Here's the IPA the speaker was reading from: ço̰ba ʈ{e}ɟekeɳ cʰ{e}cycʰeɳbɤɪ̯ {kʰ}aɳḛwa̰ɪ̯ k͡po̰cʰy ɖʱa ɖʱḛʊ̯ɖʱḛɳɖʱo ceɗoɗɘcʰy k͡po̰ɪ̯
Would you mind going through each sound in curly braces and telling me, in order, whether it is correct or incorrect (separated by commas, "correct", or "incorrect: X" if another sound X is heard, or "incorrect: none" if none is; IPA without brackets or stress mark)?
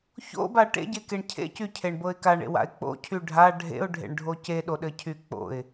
incorrect: ḛ, incorrect: ḛ, incorrect: k